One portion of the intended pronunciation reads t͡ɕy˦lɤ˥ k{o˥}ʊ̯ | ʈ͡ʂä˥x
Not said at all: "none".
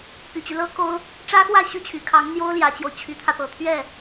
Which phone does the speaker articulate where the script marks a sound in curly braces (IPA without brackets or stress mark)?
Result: o˥